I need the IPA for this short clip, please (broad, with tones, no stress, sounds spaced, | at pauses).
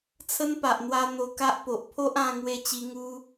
t͡sʰ ə˦ n p a˨ ʔ n̪ w a˧ n̪ o˧ k a˦ ʔ p o˨ ʔ pʰ o˦ ʔ ã˧ ŋ w e˧ t͡ɕ i˧ ŋ u˦